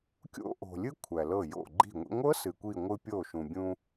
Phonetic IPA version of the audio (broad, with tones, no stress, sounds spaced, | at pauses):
kʲ o̰˦˥ ʔ o̤˩ lʲ ɨ˦˥ kʷʰ æ˩ l ɤ˧˩ j o̰˧˩ ɡ͡ǃ i̤˧˩ ŋʷ ḭ˧ ŋʷ ɤ˦˥ s ɨ˩ kʷ i˧˩ ŋʷ ɨ˧ pʲ o˧˩ ʃ ũ˩ bʲ ũ˧